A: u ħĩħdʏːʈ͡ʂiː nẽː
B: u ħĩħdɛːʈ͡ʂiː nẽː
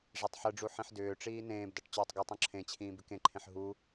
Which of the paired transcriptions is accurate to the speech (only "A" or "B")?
A